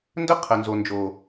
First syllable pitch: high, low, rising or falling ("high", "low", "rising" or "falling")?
high